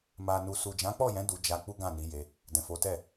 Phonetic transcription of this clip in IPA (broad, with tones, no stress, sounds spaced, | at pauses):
m a˨ n u˨ s u˨ d͡ʒ ã˨˦ k͡p ɔ˦˨ j ɛ̃˨˦ d u˧ d͡ʒ a˧ k͡p u˦ ɡ ã˦˨ n i˨˦ j e˧ | d ɛ̃˨ f o˨˦ t ɛ˦˨